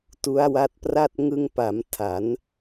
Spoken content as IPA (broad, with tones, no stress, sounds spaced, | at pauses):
t u˦˥ a̯ w a˦˥ t̚ p r a˥˩ t̚ ŋ ɯ˧ ŋ p a˩˦ m tʰ a˩˦ n